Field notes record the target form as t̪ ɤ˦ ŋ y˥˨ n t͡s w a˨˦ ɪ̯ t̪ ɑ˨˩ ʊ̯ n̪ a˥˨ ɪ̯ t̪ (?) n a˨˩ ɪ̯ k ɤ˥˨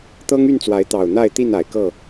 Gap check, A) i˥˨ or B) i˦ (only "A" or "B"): A